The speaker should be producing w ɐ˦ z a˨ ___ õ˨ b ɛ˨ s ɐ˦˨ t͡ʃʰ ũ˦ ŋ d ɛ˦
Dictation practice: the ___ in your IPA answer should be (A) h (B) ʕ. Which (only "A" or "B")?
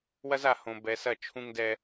A